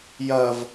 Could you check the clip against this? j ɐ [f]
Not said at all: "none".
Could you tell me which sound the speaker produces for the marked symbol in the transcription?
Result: v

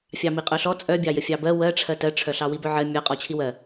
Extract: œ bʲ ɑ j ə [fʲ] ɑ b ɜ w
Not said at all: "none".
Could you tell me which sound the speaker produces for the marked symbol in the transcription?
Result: fʲ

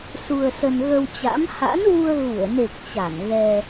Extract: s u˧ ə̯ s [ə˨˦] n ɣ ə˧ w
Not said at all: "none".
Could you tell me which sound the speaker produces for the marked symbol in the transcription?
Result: ə˧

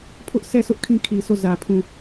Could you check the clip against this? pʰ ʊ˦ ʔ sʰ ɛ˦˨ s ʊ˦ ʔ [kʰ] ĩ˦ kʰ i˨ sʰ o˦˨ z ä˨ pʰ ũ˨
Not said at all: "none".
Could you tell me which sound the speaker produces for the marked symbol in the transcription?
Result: kʰ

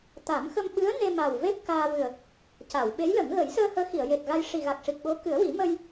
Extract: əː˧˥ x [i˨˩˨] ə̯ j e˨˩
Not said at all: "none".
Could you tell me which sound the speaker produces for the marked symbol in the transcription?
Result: i˨˩˨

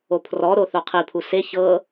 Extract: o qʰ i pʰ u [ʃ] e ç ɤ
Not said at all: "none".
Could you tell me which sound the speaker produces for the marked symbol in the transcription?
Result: s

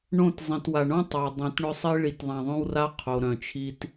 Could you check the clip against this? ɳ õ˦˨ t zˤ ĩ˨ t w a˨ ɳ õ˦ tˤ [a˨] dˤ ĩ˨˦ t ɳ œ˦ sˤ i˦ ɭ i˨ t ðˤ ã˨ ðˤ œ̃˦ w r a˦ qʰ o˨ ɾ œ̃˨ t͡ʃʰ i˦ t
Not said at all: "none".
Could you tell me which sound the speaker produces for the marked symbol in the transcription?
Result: a˨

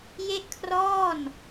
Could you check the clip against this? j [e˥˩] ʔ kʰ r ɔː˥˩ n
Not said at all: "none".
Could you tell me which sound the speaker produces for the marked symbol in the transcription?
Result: e˥˩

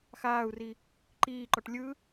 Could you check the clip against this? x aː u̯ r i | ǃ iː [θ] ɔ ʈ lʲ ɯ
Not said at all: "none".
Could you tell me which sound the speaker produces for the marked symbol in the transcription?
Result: ǃ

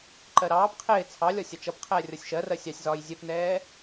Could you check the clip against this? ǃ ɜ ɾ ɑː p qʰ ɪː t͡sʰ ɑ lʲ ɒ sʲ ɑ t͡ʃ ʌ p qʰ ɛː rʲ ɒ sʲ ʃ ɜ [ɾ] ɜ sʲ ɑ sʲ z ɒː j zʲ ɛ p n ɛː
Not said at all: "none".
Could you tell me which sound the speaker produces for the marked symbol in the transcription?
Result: r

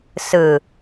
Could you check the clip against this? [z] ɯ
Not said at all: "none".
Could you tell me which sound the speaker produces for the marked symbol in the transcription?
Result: s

